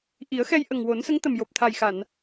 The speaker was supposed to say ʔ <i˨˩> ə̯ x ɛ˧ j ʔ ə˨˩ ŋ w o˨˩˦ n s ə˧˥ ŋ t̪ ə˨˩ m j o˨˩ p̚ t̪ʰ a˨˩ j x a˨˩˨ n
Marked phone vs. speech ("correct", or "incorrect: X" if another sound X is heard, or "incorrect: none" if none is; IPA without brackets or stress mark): incorrect: i˨˩˦